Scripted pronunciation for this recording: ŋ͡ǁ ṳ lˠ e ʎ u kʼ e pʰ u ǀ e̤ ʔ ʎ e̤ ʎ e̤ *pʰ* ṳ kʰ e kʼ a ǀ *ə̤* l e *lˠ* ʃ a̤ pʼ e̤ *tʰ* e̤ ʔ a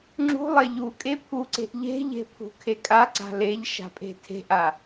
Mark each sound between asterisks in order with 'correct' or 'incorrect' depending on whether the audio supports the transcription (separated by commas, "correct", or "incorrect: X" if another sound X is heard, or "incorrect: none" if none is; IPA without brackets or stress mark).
correct, incorrect: a̤, incorrect: ʎ, correct